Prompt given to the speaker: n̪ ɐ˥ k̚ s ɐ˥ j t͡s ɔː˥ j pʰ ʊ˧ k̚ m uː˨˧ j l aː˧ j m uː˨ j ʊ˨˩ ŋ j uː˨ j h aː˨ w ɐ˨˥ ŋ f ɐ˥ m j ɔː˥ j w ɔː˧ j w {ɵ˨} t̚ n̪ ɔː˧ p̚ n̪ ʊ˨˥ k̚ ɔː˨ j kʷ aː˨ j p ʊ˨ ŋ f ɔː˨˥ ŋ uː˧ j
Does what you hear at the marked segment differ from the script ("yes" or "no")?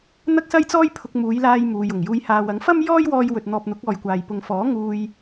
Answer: no